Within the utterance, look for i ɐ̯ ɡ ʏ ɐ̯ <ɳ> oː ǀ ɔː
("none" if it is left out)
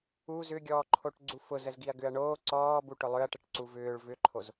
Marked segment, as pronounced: ɳ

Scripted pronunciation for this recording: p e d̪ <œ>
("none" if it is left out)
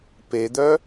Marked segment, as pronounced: œ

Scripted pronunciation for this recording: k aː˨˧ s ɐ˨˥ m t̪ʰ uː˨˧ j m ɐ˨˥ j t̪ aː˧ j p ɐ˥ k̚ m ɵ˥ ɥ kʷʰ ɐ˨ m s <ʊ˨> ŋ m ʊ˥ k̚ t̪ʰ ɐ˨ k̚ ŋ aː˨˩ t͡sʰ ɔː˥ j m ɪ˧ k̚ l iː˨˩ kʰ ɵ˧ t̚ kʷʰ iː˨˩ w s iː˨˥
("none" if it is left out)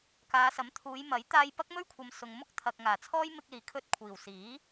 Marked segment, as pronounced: ʊ˨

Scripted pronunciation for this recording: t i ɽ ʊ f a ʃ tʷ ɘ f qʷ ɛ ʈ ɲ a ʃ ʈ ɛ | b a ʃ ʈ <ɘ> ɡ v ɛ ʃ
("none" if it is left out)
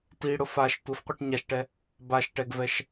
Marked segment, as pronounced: ɛ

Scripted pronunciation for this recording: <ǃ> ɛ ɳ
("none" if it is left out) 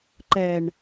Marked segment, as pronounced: ǃ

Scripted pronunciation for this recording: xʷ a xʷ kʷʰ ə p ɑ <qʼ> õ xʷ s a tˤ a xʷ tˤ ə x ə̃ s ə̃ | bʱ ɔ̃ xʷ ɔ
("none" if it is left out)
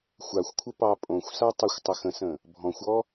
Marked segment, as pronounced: pʼ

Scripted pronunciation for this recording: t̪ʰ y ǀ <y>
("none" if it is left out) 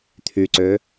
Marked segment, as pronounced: ø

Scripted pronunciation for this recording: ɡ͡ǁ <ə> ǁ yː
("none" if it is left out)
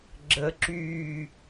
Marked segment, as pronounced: ə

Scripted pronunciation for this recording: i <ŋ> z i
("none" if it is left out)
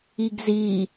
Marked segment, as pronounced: ɡ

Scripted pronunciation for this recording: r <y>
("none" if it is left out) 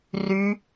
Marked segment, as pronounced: y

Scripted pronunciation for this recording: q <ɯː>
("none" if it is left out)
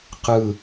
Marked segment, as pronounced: ɯ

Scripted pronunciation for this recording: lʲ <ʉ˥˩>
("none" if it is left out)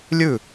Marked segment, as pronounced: ʉ˥˩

